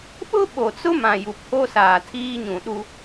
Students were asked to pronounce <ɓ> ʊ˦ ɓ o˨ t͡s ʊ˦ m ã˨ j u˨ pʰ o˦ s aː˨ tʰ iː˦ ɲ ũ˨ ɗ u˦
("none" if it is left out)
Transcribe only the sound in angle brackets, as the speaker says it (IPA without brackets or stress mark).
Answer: ɓ